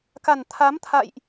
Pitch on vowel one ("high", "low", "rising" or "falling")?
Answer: low